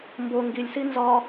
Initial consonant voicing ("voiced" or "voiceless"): voiced